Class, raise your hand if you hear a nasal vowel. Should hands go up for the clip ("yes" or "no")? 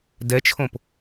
yes